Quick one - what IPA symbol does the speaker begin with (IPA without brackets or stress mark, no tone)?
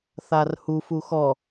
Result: θ